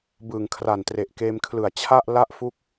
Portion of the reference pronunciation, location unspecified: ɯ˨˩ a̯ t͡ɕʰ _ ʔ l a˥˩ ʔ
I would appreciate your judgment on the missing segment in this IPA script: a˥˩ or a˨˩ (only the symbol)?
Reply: a˥˩